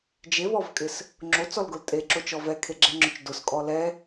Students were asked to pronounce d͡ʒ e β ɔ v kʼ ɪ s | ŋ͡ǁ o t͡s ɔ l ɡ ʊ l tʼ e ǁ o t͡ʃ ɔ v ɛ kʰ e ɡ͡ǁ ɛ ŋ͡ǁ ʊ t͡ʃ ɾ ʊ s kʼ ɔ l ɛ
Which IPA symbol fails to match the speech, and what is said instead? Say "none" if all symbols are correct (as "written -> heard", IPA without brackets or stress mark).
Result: ɾ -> d